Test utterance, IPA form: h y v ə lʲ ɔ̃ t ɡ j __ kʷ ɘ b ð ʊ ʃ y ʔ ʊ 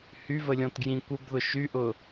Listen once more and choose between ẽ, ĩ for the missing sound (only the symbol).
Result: ĩ